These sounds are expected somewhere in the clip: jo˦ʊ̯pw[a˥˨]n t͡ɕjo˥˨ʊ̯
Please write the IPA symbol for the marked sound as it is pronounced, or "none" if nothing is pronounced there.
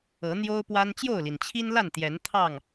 a˦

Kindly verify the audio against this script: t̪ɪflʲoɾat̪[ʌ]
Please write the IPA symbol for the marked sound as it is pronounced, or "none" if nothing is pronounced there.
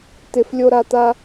a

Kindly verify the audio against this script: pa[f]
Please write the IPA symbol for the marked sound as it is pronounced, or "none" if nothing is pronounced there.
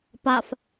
f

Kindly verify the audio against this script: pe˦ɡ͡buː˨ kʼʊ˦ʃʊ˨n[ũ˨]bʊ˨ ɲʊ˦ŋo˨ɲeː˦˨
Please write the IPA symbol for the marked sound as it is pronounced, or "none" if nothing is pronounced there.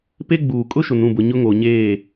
ũ˦˨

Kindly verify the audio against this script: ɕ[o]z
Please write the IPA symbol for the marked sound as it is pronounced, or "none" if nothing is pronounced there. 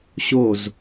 o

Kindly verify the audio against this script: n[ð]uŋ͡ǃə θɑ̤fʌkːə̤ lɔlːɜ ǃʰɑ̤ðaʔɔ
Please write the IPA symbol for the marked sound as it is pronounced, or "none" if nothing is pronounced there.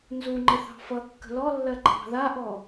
z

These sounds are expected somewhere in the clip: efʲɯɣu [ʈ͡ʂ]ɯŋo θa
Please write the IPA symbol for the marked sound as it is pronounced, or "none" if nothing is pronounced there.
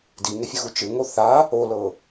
t͡ʃ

